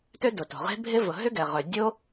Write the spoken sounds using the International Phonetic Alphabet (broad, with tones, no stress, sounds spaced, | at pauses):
t ø˥ d ʊ˩ t o̤˩ ʁ e̤˥ bʱ ɪ˥ v ʊ˩ ɦ ʏ˥ ɡ ɛ˩ ʁ œ˩ dʲ o˥